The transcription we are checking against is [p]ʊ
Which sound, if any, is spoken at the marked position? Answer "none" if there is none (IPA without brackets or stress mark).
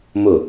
m